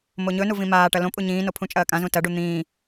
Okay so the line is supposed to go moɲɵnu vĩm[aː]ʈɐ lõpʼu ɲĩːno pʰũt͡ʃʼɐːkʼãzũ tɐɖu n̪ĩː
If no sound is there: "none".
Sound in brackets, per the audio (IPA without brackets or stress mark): aː